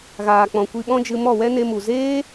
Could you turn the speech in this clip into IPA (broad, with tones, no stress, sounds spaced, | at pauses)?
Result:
ɣ aː˨ k͡p ɔ̃˨ kʷ i˧ ɓ ɔ̃˦ d͡ʒ ɨ˧ m ɔ˦˨ w ɛ˦ n e˧ m u˨ z eː˦